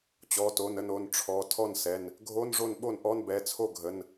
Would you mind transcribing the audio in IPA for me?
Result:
t͡ɕ ɔ˩˧˩ t o˩˧˩ n ə˥˩ n o˩˧˩ n ʈ͡ʂʰ ɔ˩˧˩ tʰ ɔ˥˩ n s ɛ˩˧˩ n | ɡʱ o˧˥˧ n ʐ o˥˩ n ɓ o˥˩ n ʔ ɔ˧˥˧ n b ɛ˩˧˩ t͡sʰ o˥˩ ɡʱ ə˩˧˩ n

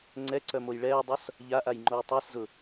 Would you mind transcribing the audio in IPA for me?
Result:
ŋ͡ǀ ɛ ǀ œ m o j ɭ ɛː dˤ o s | ʎ a ʔ a j ŋ͡ǃ o j tˤ ɛ s z ʊ

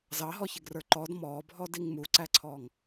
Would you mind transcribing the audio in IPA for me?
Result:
z ɑ ɦ ɔ ç ɪ ɡ r ə˞ ǃ ɔ d m ɔː bʱ ɔ d i ŋ m u ǀ æ ǀʰ ɔː ŋ

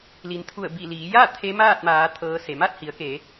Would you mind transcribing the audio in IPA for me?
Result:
l i˩˧ n t̪ʰ u˧˩ ə̯ b i˧˩ l iː˩˧ j a˥˨ t̪ʰ e˧˥ m aː˥˨ t̚ m aː˩˧ t̪ʰ ɤː˧˥ s e˩˧ m a˥˨ t̚ h i˩˧ ə̯ k e˩˧

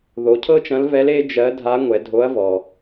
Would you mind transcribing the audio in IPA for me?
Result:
ð o˩˧ cʰ ɤ˥ t͡ʃ ɐ̃˧˥ l v ɛ˧˥ l e˥ d͡ʒ ɜ˧˥ dʱ a˧˥ ŋʷ ɛ˩˧ dʱ o˧˥ ɐ̯ v ɔ˩

